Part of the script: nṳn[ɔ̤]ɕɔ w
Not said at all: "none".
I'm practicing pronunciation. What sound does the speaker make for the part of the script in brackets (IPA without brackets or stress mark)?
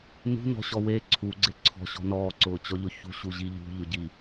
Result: ɔ̤